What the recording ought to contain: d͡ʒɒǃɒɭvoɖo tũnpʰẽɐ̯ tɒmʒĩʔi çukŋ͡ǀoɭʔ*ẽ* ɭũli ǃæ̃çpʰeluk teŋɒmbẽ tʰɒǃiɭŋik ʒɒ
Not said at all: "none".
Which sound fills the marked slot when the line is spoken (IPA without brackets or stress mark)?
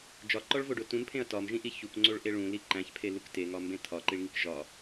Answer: e